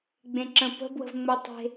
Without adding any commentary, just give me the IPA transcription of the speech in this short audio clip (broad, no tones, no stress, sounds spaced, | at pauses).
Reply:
ɡ͡b ẽ ǁ ə̃ p ə̤ b w ə̤ v ŋ͡m ʊ tˤ e̤